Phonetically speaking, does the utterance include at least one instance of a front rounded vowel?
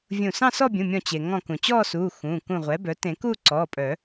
yes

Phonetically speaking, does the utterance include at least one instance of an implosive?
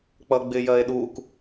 yes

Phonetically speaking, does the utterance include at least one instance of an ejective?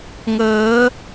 no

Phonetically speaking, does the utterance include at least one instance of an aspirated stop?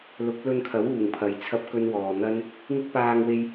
yes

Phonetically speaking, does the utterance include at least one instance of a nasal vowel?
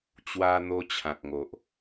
yes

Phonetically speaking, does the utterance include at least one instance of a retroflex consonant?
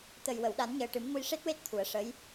yes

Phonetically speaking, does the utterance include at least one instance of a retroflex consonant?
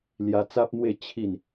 no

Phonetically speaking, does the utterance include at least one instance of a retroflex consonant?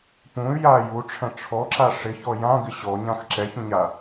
yes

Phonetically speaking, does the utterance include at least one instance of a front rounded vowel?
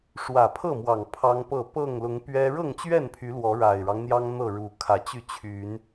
yes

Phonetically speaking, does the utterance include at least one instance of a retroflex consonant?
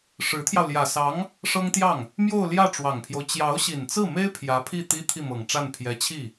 yes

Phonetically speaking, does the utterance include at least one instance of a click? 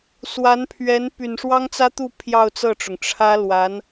no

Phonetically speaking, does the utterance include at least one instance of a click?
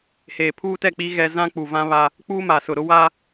no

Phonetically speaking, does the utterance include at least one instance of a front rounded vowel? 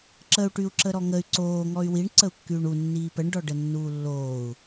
yes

